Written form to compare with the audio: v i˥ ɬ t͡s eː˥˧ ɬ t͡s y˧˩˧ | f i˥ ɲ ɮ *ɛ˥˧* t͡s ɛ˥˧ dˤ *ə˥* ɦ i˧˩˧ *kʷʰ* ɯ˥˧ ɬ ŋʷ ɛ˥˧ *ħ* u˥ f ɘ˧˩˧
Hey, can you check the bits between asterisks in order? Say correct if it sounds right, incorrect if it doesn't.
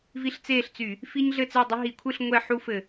incorrect: ɘ˥˧, correct, correct, correct

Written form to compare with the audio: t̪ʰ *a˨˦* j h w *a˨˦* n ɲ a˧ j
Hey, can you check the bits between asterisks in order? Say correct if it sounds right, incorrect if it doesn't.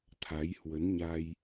correct, incorrect: ə˨˦

